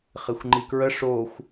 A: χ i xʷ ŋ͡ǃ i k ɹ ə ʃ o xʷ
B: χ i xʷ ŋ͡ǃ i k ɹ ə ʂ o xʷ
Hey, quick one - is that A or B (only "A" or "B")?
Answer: B